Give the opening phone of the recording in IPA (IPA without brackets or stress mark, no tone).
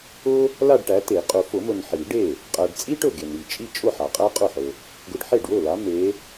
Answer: ʊ